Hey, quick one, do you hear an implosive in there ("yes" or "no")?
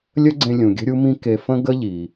no